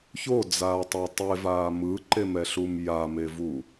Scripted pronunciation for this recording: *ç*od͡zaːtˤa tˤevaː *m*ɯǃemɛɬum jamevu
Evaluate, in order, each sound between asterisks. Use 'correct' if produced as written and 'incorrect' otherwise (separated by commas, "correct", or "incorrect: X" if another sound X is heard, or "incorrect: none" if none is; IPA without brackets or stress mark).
correct, correct